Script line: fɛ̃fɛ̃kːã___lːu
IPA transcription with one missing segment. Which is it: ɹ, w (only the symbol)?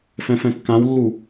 w